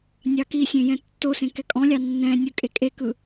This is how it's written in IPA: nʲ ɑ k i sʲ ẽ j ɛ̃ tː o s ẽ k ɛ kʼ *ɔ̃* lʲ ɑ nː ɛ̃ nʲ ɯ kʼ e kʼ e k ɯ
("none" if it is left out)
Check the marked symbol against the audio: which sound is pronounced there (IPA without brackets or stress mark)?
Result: ɔ̃